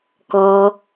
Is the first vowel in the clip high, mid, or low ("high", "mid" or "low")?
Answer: mid